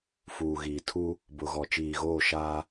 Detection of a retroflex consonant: absent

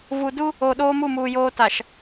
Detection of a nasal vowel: absent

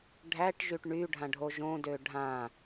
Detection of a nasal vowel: present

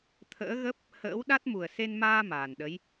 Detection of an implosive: present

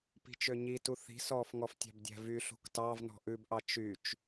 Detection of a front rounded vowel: present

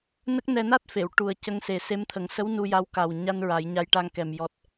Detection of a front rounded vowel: absent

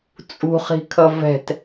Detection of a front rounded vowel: absent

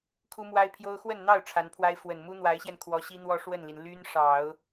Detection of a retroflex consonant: present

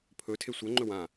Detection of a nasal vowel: present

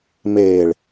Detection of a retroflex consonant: present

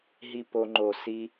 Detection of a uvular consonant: absent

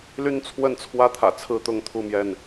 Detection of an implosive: absent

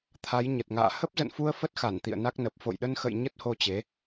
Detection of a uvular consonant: absent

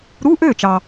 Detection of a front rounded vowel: present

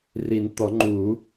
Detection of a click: present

